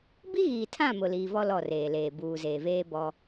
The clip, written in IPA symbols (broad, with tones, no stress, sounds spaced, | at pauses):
b i˦ ɣ iː˨ tʰ ã˦˨ m ʊ˨ l iː˨ v ɔ˦ l ɔ˦˨ r eː˨ l eː˨ b uː˨ z eː˨ v eː˦ b ɔ˦